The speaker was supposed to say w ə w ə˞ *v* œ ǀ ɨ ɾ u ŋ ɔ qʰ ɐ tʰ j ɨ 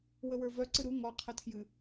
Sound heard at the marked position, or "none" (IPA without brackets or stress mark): v